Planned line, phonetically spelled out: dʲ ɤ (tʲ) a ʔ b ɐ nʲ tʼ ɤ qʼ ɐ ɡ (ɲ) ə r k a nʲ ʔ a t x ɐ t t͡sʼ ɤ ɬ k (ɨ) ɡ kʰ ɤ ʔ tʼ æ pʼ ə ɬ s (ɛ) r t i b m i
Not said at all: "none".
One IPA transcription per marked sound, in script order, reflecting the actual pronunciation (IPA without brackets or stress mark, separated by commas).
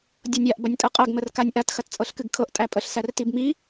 nʲ, m, ɨ, æ